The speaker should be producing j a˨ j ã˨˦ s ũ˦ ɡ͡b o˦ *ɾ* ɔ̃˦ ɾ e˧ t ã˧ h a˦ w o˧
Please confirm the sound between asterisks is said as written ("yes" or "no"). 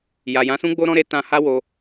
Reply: yes